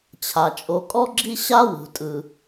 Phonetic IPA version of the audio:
t͡ɕʰ a˩ t͡ʃʼ o˨ kʼ ɔ˥ ɡ͡ǁ i˥ ɕ a˥ w ṳ˩ tʼ ɯ˩

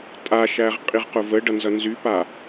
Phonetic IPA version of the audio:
tʼ a ʃ æ ʁ qʼ i ʁ q ʊ v ə ɖ ʌ n z ʌ n z y p a

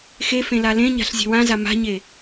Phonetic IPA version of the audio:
x e f ẽ l a l ẽ ɲ a̤ ɬ zʲ ɛ̤ w ã z a m a̤ ɲ e

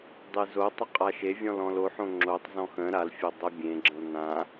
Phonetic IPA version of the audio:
dˤ e z o tˤ ə qʼ a ʃ e vʲ ɔ̃ l ɔ̃ l o ħ õ ŋ͡ǁ o tˤ z ɔ̃ x ə̃ ɾ a l fʲ o dˤ ə bʲ ẽ ɡ͡ǁ ə̃ l n ã

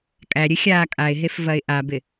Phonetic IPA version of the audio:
kʼ æ ɾʲ ɨ xʲ aː kʼ a ɪ̯ ɦ e f v ɐ ɪ̯ ʔ a b ɪ

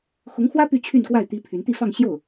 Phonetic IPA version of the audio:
x ʊ˧˥ ŋ x w ä˥ p y˥˧ t͡ɕʰ y˥˧ n k w a˥˩ ɪ̯ t̪ i˥ pʰ y˧˥ n t̪ i˥˧ f ɑ˥˧ ŋ ɕ j o˥˩ ʊ̯

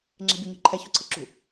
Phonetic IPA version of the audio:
ŋ͡ǁ ɛ̤ bʲ œ ɲ o̤ ǃʰ ɛ ç o̤ ǀʰ ə ǁ ṳ

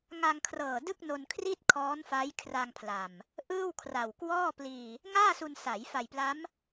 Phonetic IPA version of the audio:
ŋ a˧ ŋ kʰ r ɤː˨˩ d ɯ˥˩ k̚ n o˧ n kʰ r i˥˩ t̚ kʰ ɔː˦˥ n f a˦˥ j kʰ r a˧ ŋ pʰ l a˨˩ m | ʔ ɯː˥˩ w kʰ r a˨˩ w k w ɔː˥˩ p l iː˧ | ŋ aː˥˩ s u˧ n s a˩˦ j f a˨˩ j p l a˦˥ m

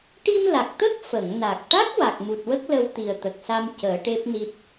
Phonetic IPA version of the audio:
ʈ i˧ m l a˨˩ k̚ t̪ ə˦˥ k̚ f ə˨˩˨ ŋ n a˨˩ k̚ ʈ a˦˥ k̚ w a˨˩ k̚ m u˨˩ t̚ w ə˦˥ k̚ l ə˧ w t̪ i˨˩ ə̯ t̪ ə˨˩ k̚ s a˧ m c əː˨˩˦ ʈ e˦˥ p̚ n i˦˥ t̚

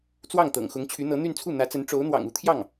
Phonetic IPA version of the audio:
t͡s w ɑ˥˩ ŋ t̪ ɤ̰˨˩ ŋ x ʊ˧˥ ŋ t͡ɕʰ y˧˥ n̪ ɤ˧˥ n̪ y˥˧ n t͡sʰ u˥˩ n̪ ä˧˥ t͡s ə˧˥ n ʈ͡ʂ o˧˥ ʊ̯ n̪ w ɑ̰˨˩ ŋ u˧˥ t̪ʰ j ɑ˥˩ ŋ

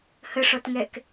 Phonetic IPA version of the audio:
h ə ʂ ɔ t ŋ ɛ k

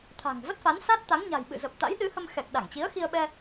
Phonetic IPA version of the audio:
t̪ʰ a̤˨˩ ŋ v ə˦˥ t̚ f a˨˦ n s a˦˥ t̚ t̪ a˨˦ ŋ ɲ a̤˨˩ j ɓ ɨ̰˧˨ z ə˨˩ p̚ t̪ a̰˧˥ j ɗ ɨ˨˦ h ə˧ m x ɛ˨˩ k̚ ɗ a˧˩ ŋ t͡ɕ i˨˦ ə̯ x i˧ ə̯ ɓ ɛ˧

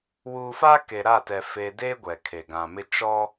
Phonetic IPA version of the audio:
w uː˨ f a˦ k e˨ ɾ a˦˨ t ɛ˨ f e˨ d e˦ ɡʷ ɛ˨ kʰ e˨ ɡ ã˨ m ɪ˦ t͡ʃ ɔ˦

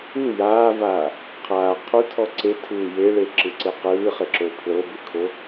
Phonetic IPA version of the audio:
ɯ j aː v aː | qʰ aː qʰ u tʰ ɔ ǀ e tʰ ɯː j e ɭ e ǁ ɯ ǀ e q ɯː χ e ǁ o pʰ l ɤ b ɯ kʰ o

